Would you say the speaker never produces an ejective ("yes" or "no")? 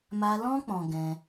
yes